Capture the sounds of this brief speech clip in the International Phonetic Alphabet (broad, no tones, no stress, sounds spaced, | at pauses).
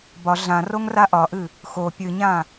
b ɒ ɮ ã r o ŋ r a ʔ ɒ ʔ ɨ | x o pʲ ɨ ɲ ã